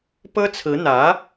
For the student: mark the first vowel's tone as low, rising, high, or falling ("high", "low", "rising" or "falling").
high